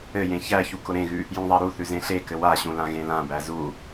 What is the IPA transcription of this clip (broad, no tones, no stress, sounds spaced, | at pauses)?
ɘ j ẽ ç æ ç u k ʊ ɾ ẽ ɣ ʉ | j ũ ðˤ a ɾ u θ ʉ z ẽ ɬ e k ɘ w a ɕ ũ l ã ɣ ẽ l ã b æ z u